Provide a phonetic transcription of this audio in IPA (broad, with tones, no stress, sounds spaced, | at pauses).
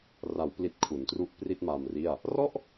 r a˩˦ w p l i˨˩ t̚ kʰ u˩˦ n t r u˦˥ ʔ p r i˥˩ t̚ m a˧ m r i˥˩ a̯ | r ɔ˥˩ ʔ